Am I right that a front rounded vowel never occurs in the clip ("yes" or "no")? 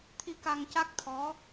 yes